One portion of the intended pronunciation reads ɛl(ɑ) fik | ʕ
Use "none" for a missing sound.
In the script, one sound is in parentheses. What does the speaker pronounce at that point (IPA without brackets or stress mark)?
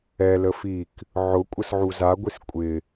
ə